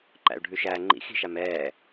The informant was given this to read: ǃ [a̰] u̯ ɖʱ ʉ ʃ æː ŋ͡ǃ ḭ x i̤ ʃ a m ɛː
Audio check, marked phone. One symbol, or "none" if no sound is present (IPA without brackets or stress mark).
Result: æ̰